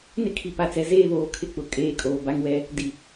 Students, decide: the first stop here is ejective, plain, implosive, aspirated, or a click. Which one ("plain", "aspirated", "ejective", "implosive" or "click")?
aspirated